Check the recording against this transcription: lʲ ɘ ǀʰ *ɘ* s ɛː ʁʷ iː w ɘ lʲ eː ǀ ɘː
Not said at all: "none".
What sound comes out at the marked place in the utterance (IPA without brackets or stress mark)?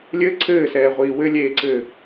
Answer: ɘː